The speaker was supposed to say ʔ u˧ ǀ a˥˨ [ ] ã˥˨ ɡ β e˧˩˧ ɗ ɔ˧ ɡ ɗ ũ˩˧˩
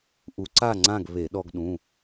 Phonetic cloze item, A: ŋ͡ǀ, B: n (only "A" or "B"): A